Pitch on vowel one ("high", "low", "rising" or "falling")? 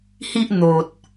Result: high